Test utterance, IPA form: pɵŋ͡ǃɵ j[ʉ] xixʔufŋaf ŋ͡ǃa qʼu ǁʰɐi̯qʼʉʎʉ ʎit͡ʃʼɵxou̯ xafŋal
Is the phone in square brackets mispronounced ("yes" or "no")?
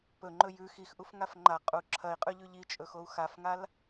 no